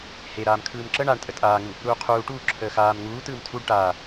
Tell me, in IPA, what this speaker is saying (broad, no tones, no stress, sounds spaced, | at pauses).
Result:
h e ɾ aː m kʰ ɯː m ǁ ə ɳ a ɳ tʼ ə tʼ aː ŋ u | ɾ uː qʰ uː ʈ uː ǁʰ əː x aː m ŋ uː t ɯː m tʰ u ɖ ʈ aː